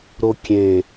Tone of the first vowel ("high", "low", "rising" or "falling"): high